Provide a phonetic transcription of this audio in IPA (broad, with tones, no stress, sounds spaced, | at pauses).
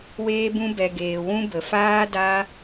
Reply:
w eː˧ b ũ˧ b ɛ˨ ɡ eː˨ w ũ˦ b ə˨ f aː˦ d a˦